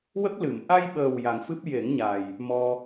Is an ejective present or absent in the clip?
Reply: absent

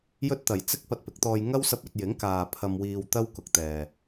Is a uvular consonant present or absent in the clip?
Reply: absent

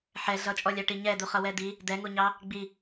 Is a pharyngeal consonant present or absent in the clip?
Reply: present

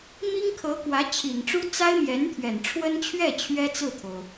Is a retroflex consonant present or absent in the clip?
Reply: present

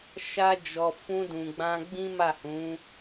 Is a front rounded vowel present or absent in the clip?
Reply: absent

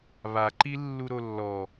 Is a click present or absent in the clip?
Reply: present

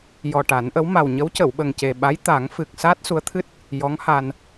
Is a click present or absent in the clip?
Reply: absent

